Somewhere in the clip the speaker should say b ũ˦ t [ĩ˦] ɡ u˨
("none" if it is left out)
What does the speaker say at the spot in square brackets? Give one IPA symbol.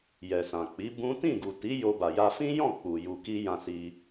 ĩ˦˨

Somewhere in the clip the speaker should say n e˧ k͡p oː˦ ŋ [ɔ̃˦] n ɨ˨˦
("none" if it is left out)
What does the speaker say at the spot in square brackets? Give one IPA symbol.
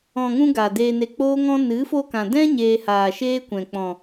ɔ̃˦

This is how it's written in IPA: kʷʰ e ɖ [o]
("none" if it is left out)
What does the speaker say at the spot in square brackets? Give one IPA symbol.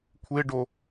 o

